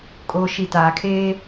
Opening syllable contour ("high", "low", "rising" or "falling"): low